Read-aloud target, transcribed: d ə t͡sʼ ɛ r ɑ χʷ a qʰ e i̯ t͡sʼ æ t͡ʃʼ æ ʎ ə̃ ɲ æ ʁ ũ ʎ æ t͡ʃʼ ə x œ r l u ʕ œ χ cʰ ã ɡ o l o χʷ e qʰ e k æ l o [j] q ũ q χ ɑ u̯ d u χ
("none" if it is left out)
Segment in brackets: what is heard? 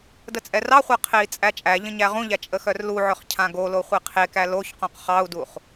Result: ç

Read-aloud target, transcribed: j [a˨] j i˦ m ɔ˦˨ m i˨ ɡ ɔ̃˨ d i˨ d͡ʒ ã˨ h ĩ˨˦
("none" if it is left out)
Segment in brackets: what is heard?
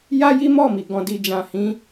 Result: a˦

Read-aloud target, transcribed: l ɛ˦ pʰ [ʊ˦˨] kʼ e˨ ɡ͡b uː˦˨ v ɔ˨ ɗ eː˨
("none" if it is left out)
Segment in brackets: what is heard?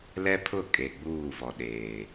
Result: ʊ˦˨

